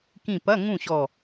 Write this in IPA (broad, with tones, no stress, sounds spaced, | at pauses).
k ĩ˧˩ p ɐ˧˥˧ ŋ ũ˥˨ ɕ ɔ˧˩